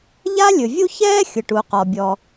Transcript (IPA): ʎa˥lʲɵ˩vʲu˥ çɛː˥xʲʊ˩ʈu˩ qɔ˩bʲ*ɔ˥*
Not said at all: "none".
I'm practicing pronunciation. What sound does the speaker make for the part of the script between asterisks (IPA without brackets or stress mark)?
ɔ˩